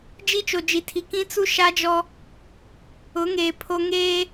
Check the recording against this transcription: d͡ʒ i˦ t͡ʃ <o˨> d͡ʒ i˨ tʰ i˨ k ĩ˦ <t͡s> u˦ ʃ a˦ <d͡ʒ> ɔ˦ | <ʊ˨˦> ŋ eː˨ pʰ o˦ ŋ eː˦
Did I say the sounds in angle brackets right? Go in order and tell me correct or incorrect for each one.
correct, correct, correct, correct

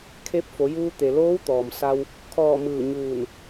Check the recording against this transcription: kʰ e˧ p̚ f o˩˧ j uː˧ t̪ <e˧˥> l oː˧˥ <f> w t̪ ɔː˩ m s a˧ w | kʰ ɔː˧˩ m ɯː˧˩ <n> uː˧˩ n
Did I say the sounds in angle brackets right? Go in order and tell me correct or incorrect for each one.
incorrect, incorrect, incorrect

